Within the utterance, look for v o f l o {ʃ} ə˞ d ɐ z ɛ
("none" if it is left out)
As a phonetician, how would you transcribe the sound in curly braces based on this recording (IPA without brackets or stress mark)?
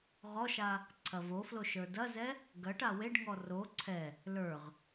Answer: ʃ